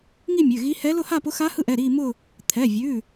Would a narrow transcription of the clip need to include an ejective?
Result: no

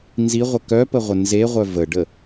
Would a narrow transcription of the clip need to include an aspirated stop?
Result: no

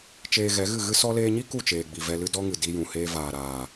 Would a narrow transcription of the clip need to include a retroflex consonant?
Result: no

